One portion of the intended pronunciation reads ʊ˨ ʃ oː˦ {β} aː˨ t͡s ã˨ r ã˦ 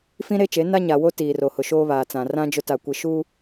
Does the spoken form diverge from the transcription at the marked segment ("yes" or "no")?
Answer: no